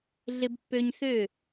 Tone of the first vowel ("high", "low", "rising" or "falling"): high